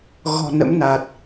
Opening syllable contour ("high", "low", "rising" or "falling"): low